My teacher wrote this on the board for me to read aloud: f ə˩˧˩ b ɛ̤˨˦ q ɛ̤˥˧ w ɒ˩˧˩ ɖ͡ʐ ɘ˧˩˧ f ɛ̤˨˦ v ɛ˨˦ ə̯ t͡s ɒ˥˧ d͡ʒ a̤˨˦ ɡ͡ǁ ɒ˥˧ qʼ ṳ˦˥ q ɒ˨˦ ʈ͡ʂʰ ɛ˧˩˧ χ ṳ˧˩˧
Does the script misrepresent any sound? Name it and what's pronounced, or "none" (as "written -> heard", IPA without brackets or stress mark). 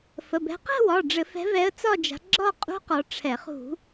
none